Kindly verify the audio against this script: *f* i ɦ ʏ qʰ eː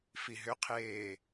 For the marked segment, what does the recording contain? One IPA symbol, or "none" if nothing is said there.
f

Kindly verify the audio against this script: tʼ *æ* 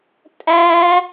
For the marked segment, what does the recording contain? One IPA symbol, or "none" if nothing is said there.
æ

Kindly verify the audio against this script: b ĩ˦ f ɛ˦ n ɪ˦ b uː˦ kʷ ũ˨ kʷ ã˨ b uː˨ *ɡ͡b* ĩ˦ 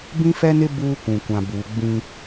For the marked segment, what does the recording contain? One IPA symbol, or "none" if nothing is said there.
ɡ͡b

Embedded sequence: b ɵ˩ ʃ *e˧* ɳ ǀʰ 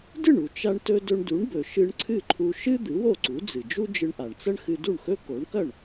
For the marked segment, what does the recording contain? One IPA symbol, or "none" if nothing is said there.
ɨ˧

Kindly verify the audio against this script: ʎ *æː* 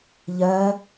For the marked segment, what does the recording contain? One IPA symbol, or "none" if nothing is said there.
ɜː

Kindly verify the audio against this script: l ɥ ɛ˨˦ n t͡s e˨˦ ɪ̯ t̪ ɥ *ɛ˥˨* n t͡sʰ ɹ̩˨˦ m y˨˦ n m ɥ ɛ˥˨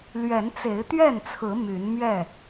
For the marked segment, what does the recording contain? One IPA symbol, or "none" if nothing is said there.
ɛ˥˨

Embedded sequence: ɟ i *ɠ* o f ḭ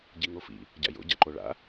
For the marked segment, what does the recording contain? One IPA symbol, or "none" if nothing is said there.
ŋ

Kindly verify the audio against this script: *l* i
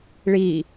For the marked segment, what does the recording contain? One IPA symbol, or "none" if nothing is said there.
ɭ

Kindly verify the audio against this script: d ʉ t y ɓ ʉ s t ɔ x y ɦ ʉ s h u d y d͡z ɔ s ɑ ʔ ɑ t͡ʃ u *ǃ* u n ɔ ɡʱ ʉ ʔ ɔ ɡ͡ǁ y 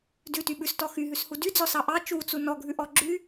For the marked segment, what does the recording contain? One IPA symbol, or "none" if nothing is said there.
t͡s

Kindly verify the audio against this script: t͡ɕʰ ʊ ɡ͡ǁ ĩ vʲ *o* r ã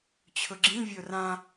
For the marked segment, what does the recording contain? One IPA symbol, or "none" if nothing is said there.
o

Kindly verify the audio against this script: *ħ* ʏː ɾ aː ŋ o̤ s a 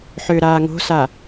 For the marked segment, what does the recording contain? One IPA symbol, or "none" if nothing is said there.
ħ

